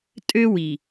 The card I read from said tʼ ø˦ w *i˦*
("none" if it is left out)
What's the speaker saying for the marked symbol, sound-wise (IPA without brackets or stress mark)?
i˨